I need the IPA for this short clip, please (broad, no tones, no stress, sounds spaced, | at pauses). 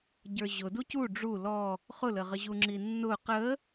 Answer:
ɟ ə˞ ʑ ʊ d u c u ɖ͡ʐ u l ɔ | χ ʊ l ə ʁ ə ʑ u ŋ͡ǁ i nː ʊ q ə